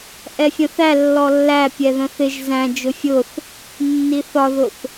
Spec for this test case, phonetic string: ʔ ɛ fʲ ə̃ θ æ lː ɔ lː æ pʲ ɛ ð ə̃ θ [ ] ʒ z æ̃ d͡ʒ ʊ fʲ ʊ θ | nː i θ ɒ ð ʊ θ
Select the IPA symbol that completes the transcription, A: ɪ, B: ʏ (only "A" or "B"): A